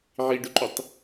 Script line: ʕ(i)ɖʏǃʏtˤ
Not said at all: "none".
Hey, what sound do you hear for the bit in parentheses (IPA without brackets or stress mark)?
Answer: i